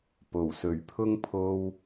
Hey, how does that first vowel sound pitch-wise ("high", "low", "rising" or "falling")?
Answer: low